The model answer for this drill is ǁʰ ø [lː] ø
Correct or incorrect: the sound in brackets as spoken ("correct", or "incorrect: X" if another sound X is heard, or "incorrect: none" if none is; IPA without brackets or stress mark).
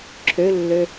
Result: correct